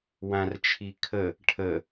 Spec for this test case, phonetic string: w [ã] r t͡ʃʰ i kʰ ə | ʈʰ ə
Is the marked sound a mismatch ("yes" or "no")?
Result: no